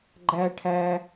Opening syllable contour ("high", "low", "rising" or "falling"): high